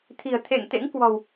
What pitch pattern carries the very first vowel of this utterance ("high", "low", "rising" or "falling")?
low